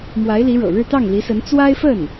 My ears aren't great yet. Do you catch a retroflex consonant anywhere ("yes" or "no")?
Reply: yes